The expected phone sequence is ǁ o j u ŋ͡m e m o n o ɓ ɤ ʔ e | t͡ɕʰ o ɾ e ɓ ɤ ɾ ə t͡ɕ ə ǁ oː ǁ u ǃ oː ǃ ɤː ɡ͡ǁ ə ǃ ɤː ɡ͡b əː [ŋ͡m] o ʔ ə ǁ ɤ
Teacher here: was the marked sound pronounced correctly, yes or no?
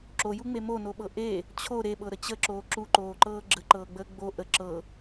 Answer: no